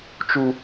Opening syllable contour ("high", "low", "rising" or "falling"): high